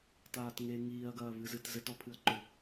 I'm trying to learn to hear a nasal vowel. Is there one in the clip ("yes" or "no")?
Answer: no